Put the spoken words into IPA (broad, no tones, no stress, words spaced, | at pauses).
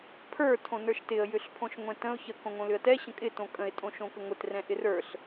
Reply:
pʰə˞ tʰõnə˞ʃtɪə̯ jʏɬpʰõʃŋʷɛ̃tə̃ʊ̯ çə kõŋõlʏə̯tɛ ɕə̃kʼɪ tõkʼə̃ɪ̯ tʼõʃõkəŋʷɪt rɛ̃ʔɪrə˞ɬ